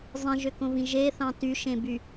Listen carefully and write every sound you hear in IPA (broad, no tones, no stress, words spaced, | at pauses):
zˤĩʒøkõvĩ ʒeθɑ̃ tyʃẽby